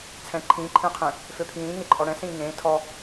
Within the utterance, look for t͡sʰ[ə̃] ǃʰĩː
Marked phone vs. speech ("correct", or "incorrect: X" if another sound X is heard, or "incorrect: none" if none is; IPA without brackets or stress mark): incorrect: ɛ̃